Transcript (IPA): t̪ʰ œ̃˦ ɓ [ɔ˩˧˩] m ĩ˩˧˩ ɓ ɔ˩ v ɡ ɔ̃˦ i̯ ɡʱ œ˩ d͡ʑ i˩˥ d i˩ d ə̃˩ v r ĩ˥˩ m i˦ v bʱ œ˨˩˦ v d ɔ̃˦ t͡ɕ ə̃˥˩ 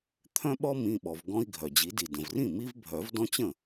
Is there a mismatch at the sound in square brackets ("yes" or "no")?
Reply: yes